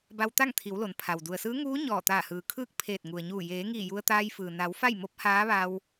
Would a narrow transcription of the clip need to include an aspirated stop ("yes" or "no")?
yes